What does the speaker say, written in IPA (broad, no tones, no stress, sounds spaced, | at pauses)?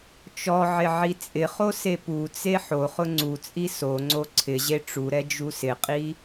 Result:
t͡ʃ ɔ ʕ ɪ ʕ i t͡sʼ ɪ χ o s e p u t͡s e ħ o χ ʊ ŋ͡ǀ u t͡sʼ i s o ŋ͡ǀ o ǀʰ ɪ ʑ e ʈ͡ʂ u ɾ ɛ d͡ʒ u s ɪ qʼ i